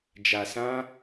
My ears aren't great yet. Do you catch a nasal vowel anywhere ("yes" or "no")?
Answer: yes